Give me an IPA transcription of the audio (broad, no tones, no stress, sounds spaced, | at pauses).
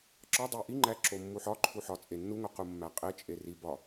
ǁ ɒ dˤ e ʔ i ŋ͡ǃ æ ǁ o mː u ħ ɒ ǃʰ u ħ ɒ t͡sʼ e nː u ŋ o q u mː æ qʼ e t͡ʃʼ e r i b ɒ